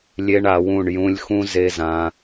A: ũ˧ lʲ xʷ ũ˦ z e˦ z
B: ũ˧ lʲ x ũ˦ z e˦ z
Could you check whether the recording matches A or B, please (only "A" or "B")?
B